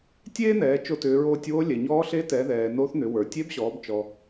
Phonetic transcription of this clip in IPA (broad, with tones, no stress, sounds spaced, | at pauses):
tʲ eː˥ n̪ ɛː˩˧ t͡ʃ o˧ t ʏː˩˧ ɹ oː˧ tʲ w o˧˥ lʲ ɛ˩ ɲ ɔː˧˥ ɬ e˧˥ t ɛ˩˧ ð ɛː˩ n o˧˥ θ n̪ ʏ˩˧ w ə˞˩ tʲ e˧˥ b ɕ ɔː˩˧ b t͡ʃ ɔ˩